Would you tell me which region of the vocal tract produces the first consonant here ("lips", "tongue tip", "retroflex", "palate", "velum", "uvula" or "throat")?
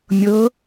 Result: lips